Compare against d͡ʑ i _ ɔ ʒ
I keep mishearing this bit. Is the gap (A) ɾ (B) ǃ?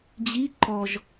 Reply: B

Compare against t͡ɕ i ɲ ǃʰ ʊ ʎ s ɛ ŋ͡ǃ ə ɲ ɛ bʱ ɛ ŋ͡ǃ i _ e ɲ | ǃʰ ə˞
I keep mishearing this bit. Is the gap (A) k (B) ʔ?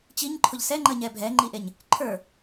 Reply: B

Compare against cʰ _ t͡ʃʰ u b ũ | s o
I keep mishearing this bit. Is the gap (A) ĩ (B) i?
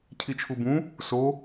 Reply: B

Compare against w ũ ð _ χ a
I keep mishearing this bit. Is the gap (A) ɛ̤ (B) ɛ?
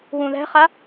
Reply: A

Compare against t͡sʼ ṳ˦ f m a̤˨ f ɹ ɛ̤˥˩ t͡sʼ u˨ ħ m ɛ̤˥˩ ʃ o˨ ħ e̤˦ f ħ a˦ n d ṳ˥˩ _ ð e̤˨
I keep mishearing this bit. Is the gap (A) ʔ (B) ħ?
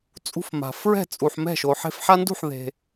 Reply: B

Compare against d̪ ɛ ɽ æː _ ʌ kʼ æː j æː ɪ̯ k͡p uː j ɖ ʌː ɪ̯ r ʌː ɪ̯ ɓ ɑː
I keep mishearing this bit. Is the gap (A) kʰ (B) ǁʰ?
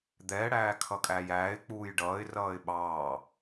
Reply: A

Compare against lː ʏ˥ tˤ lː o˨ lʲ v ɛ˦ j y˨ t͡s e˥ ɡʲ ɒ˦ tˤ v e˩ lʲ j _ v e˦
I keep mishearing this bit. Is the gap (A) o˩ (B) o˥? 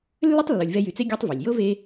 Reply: B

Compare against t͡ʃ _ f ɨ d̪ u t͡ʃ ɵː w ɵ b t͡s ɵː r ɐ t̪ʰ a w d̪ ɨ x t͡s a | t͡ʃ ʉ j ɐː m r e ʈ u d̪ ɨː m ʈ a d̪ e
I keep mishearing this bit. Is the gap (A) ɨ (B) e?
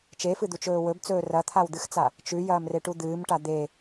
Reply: B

